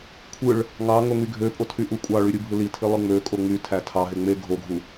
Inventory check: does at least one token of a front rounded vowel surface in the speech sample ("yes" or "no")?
yes